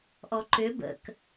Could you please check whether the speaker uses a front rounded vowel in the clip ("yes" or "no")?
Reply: yes